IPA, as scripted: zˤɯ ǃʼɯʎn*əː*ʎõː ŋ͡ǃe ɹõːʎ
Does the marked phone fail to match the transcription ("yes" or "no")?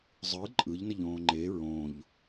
yes